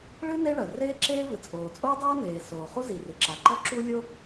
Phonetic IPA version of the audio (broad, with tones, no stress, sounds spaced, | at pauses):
ɭ ɨ˥ n e˥ ɭ ɐ˩ r eː˥ ǁ eː˥ v ɨ˩ t͡sʼ oː˩ t͡sʼ oː˥ dˤ aː˥ n eː˩ s oː˩ χ u˥ z i˩ r ɨ˩ ǁ a˩ ǃ ɔ˥ ǁ u˥ lʲ o˥